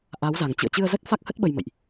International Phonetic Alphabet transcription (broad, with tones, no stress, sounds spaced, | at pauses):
ʔ a˨˦ w z a˨˩ ŋ t͡ɕ ɨ̰˧˨ ə̯ t͡ɕ ɨ˧ ə̯ z ə˦˥ t̚ f a˦˥ k̚ h ə˦˥ t̚ ɓ ə˧ j m ə̰˧˨ j ʔ